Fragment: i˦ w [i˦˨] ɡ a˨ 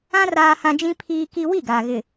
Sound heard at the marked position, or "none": i˦˨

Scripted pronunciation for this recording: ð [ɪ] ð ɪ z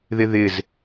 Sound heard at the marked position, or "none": ɪ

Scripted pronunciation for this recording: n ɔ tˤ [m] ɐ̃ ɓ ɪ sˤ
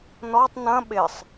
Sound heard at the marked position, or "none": n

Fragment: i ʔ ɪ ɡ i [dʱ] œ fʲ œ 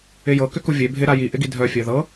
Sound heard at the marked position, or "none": dʱ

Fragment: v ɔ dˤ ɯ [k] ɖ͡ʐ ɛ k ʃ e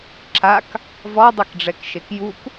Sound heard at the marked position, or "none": k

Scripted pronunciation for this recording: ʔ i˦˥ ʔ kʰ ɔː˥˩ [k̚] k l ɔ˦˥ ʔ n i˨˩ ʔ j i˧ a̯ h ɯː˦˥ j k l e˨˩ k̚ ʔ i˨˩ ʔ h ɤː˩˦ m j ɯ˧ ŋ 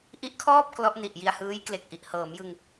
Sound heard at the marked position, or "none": p̚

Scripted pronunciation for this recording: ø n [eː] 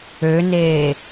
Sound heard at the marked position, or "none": eː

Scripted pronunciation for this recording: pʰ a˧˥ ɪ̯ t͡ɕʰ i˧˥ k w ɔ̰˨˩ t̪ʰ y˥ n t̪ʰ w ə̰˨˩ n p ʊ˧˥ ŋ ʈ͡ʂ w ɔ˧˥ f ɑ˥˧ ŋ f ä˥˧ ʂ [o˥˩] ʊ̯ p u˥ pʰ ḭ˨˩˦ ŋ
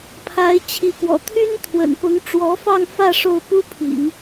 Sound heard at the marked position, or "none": o˥˩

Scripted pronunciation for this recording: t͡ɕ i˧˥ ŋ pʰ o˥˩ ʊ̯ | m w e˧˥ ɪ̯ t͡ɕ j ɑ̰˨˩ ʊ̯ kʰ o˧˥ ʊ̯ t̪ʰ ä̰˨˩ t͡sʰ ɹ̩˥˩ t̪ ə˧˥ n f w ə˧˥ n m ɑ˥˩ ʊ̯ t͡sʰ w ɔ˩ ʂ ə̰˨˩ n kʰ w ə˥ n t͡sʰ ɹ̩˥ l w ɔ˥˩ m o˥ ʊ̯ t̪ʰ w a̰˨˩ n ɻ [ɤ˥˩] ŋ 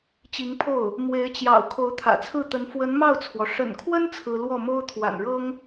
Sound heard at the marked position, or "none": ɤ˥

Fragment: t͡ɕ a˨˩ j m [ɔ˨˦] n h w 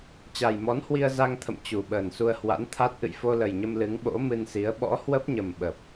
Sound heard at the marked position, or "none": ɔ˨˦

